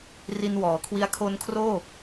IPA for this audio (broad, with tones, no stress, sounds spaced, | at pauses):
r i˧ n w ɔː˩˦ kʰ w i˦˥ a̯ kʰ o˧ n kʰ r oː˥˩